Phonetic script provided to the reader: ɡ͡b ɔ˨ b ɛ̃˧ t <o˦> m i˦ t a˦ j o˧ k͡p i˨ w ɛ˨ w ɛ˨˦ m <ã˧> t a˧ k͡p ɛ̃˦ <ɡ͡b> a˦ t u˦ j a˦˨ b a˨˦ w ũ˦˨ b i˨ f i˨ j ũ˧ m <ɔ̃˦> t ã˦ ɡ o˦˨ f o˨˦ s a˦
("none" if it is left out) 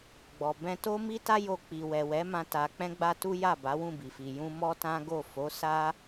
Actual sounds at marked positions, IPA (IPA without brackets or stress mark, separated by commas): o˦, ã˧, ɡ͡b, ɔ˦